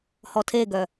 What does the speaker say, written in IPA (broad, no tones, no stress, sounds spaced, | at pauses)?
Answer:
h ɔ tʰ e ɡ œ